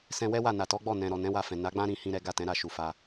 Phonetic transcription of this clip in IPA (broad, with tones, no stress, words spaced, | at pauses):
sɛ̃˧wɛ˦wa˦˨ na˨tɔ˨˦ɡ͡bɔ˦˨nɛ̃˨ ɾɔ˨ nɛ̃˨˦wa˧fɛ̃˨ na˨˦ɡ͡bã˦ ɾĩ˧ hĩ˦ɾɛ˦ ɡa˦˨tɛ̃˨˦ɾa˦˨ ʃu˨ fa˧